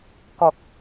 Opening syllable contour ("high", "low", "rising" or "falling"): low